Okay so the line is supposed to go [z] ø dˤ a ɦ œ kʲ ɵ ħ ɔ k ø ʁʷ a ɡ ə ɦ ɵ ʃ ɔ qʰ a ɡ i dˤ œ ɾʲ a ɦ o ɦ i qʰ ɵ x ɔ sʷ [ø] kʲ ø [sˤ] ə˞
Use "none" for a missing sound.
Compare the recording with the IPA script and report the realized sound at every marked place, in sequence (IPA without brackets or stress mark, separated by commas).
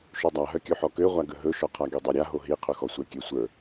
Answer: ʃ, ɛ, sʷ